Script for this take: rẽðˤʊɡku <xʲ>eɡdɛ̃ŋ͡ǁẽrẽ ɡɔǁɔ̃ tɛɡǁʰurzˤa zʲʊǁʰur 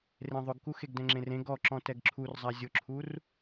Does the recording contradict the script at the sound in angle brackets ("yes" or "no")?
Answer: yes